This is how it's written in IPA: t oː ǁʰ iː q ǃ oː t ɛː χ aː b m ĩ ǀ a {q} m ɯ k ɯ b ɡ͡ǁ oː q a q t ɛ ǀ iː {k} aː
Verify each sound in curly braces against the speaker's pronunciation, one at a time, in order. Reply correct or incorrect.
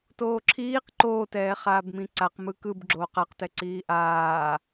correct, incorrect

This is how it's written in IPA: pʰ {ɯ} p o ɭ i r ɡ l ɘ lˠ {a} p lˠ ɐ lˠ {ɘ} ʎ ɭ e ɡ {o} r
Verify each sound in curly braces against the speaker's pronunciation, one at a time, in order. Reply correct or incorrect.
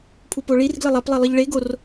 incorrect, correct, correct, correct

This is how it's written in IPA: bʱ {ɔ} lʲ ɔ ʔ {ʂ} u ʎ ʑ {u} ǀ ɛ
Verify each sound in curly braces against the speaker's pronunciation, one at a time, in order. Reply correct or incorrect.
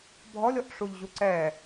correct, correct, correct

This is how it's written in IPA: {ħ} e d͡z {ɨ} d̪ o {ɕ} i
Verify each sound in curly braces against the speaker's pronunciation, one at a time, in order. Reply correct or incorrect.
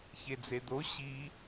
incorrect, incorrect, correct

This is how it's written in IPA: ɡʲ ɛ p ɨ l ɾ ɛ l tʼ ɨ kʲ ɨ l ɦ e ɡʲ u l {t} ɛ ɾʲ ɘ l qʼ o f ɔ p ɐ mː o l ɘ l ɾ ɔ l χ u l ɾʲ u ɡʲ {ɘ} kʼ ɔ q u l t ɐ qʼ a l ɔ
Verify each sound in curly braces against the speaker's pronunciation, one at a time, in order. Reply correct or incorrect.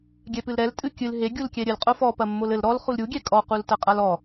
incorrect, incorrect

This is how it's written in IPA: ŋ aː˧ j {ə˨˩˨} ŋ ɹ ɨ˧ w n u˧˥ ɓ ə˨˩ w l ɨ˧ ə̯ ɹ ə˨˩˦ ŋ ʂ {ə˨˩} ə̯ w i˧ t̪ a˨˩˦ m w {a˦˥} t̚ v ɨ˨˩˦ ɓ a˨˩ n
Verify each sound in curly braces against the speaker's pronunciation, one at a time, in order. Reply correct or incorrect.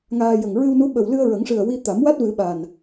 incorrect, incorrect, correct

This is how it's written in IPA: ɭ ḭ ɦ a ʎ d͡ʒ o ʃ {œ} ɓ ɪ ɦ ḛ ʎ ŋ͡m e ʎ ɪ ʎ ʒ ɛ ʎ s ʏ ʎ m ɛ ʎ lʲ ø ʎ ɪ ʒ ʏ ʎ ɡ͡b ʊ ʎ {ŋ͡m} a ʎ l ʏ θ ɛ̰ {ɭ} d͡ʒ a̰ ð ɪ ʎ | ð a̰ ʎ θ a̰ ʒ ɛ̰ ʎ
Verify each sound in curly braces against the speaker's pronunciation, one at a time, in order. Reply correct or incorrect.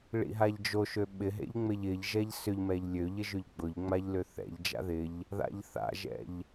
incorrect, correct, incorrect

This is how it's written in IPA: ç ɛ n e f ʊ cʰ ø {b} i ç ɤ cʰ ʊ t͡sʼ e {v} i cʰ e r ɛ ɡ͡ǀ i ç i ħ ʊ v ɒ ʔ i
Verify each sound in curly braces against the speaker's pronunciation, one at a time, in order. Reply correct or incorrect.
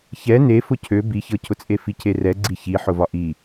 correct, incorrect

